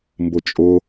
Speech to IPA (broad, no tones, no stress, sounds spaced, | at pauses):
m b ʊ t͡ʃʼ ʊ